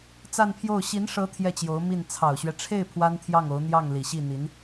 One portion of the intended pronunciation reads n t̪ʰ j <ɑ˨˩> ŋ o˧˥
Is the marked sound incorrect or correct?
incorrect